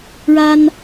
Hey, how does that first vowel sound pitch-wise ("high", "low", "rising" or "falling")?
high